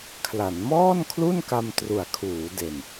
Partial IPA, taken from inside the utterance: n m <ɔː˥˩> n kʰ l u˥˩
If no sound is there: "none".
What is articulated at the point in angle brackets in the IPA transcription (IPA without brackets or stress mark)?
ɔː˥˩